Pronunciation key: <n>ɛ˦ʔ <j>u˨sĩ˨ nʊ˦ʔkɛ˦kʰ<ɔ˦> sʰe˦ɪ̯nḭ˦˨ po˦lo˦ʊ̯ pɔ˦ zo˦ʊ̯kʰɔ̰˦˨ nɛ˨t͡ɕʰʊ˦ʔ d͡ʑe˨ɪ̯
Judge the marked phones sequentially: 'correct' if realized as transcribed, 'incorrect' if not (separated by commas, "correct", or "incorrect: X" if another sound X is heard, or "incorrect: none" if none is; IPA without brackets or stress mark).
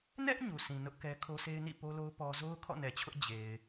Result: correct, incorrect: ɲ, incorrect: o˦